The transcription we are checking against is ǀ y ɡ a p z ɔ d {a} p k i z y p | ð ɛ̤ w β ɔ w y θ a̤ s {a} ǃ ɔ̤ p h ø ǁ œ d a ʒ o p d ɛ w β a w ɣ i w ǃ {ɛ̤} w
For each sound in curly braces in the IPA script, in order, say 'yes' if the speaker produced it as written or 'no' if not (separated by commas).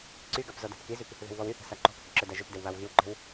no, yes, yes